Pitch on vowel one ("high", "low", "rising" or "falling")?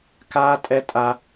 high